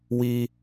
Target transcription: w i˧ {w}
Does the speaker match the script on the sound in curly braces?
no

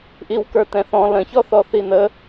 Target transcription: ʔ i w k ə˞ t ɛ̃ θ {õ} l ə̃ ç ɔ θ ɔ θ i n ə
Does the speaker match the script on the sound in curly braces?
no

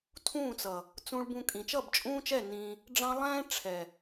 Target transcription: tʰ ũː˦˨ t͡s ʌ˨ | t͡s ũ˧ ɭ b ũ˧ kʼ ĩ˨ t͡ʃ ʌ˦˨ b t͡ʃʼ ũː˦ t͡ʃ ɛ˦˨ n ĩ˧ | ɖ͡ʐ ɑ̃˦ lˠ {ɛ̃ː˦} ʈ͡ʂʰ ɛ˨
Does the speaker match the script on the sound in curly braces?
yes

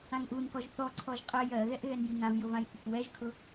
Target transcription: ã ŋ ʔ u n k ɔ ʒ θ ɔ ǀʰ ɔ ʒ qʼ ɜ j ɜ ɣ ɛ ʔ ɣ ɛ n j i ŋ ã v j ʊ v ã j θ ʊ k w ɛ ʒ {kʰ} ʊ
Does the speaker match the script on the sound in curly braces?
yes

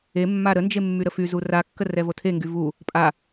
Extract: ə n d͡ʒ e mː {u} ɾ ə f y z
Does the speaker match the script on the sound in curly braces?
no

